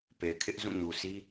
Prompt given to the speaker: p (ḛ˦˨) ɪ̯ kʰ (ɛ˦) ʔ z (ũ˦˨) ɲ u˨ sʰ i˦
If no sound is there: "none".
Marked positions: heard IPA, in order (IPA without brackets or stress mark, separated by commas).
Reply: e˨, ɪ˦, ũ˦˨